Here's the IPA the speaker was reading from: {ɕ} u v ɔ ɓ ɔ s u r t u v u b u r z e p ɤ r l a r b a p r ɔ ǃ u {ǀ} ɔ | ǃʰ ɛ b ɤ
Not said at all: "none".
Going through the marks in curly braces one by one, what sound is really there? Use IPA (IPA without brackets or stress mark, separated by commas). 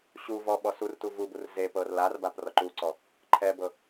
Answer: ɕ, ǀ